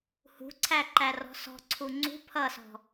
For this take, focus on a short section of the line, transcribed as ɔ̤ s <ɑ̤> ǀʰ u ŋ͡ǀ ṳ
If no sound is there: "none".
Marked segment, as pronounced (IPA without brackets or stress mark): ɔ̤